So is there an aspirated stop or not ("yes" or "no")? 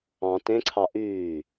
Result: yes